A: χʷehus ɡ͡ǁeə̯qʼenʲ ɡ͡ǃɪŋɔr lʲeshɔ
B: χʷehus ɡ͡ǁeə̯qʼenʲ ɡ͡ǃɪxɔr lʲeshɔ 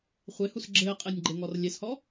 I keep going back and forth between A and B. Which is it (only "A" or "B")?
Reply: A